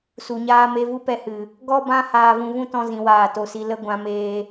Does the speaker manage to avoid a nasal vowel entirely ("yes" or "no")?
no